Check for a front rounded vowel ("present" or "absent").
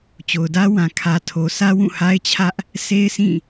absent